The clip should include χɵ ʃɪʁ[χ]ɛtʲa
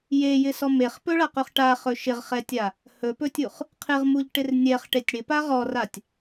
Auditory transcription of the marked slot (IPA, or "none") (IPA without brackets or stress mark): χ